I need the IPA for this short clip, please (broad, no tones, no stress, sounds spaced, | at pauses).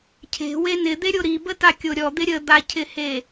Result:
cʰ e̤ w e n ɪ d̪ e ɾʲ o ɾ i b ə t a kʲ o ɾʲ ɔ d̪ ɪ ɾʲ ə d̪ a cʰ ɪ h e